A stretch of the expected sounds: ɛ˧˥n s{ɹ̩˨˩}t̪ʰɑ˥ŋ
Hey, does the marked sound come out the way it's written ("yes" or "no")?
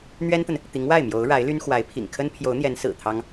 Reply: yes